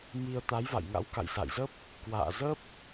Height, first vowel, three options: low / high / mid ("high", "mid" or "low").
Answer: high